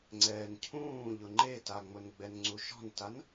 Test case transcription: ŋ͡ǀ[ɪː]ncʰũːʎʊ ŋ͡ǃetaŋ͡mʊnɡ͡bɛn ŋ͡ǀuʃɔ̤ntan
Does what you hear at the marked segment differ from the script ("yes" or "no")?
yes